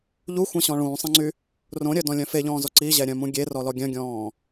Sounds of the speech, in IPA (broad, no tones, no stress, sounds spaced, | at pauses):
ʎ u xʷ ɛ̃ ɕ ɔ̃ ɭ ũː sˤ ɛ̃ ŋ͡ǀ y | r õ ɾʲ œ d ɔ̃ lʲ œ̃ f e ʎ ɔ̃ː z ɔ ǀ i ʑ ɛ ɾʲ œ̃ m ũ ɡʲ e r ɔ l ɔ ɡʲ œ̃ ɡʲ ɔ̃ː